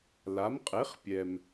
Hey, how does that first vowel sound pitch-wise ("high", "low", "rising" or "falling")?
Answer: rising